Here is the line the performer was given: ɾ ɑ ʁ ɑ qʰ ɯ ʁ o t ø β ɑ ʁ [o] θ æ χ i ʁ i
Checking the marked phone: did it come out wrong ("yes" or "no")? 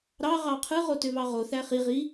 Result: no